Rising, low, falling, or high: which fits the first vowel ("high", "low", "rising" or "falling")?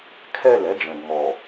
falling